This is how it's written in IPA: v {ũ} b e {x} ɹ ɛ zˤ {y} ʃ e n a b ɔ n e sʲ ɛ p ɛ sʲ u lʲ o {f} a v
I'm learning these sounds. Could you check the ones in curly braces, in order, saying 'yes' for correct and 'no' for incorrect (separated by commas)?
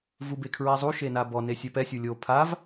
no, no, no, no